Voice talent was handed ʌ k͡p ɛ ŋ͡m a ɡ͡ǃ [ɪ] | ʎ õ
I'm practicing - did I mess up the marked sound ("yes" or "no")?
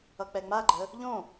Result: yes